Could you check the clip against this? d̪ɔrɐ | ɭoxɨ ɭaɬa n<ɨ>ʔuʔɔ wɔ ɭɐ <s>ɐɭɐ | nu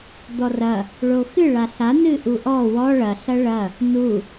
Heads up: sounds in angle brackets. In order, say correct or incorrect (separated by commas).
correct, incorrect